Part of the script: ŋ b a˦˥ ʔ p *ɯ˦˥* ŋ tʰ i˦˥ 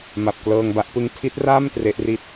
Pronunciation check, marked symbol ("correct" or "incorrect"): correct